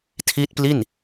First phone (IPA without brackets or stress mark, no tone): tʰ